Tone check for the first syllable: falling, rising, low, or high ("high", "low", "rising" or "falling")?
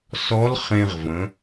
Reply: rising